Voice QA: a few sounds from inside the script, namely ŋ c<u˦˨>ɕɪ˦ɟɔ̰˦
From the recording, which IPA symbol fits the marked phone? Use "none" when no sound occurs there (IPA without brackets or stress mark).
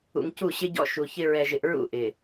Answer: u˦˨